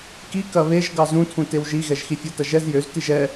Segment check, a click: absent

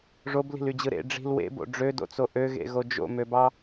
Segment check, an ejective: absent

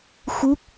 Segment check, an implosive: absent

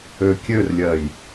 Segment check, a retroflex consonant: absent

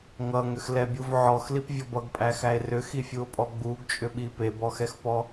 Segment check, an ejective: present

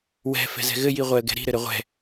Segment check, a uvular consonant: present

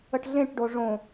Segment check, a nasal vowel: present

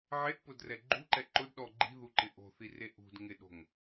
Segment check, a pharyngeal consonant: present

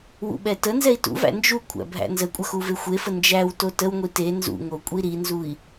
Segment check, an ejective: present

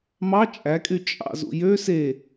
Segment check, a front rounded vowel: present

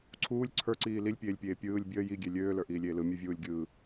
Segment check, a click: present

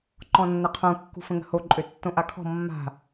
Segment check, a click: present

